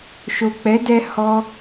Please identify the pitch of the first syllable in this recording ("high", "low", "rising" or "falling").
low